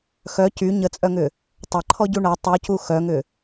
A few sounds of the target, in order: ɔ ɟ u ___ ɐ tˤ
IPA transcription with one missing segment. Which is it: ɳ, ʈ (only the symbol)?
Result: ɳ